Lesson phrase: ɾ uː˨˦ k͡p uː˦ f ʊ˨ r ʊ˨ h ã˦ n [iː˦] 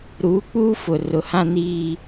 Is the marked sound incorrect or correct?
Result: correct